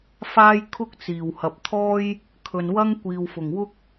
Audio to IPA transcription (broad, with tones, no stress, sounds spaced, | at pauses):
f aː˥ j kʰ ʊ˥ k̚ t͡s iː˨˩ w h ɐ˨ p̚ t̪ʰ ɔː˥ j | kʰ ɵ˨ n w ɐ˥ ŋ kʷ iː˨ w f ʊ˨˩ ŋ w ʊ˥ k̚